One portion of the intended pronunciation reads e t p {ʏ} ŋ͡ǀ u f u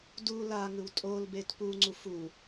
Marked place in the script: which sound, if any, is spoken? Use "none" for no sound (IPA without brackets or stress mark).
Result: u